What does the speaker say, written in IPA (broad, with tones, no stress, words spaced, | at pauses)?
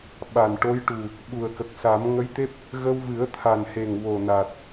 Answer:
ɓa˨˩nʈo˧˥jʈu˨˩ | ɓu˨˩ə̯kə˨˩k̚sa˨˩˦m ŋə˧˥jt̪e˦˥p̚ | ɣə˧wvɨ˨˩˦ə̯ t̪ʰa˨˩nhe˨˩ŋ wo˨˩na˨˩t̚